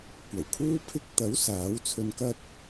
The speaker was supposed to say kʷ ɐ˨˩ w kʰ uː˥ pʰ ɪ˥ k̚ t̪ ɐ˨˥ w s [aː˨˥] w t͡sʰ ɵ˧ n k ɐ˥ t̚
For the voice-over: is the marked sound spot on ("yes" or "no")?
yes